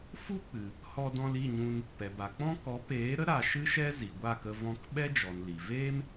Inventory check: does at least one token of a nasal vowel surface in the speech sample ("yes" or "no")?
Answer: yes